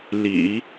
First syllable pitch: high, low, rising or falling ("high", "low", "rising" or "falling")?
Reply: low